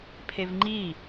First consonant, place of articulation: labial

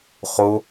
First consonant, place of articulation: uvular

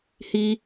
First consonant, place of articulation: glottal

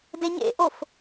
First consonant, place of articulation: alveolar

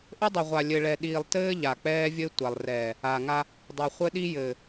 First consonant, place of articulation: glottal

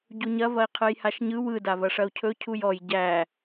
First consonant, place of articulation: palatal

